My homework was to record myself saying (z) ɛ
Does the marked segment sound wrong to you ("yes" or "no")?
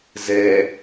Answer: no